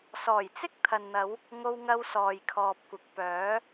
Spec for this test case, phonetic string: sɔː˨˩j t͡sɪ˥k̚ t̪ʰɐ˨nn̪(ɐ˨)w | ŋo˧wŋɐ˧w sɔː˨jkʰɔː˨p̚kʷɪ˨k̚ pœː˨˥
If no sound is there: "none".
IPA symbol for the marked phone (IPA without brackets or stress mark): ɐ˨˧